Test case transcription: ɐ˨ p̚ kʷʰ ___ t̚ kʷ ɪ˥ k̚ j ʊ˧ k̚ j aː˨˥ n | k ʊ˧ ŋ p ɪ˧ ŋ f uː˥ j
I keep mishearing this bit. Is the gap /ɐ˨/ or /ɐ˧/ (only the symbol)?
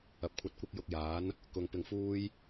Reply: ɐ˧